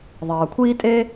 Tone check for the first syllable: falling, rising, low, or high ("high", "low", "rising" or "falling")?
low